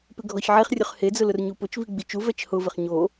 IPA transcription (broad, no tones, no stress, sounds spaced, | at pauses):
p ɪ ɡʱ ɔ ç ʕ e χ rʲ ʊ χ h e d͡z ʊ l ʊ r ɲ u p ʊ t͡ʃ v i ɡ͡b i t͡ʃ u v ɛ t͡ʃ h ʊ v ɪ χ ɲ o